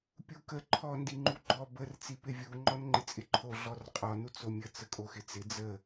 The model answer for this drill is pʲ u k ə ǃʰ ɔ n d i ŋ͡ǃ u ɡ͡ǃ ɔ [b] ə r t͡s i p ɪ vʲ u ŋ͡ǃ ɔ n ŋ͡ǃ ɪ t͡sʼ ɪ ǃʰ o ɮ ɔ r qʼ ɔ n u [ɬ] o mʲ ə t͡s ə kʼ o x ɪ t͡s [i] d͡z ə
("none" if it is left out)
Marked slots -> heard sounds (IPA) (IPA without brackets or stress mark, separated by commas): b, t͡s, ɪ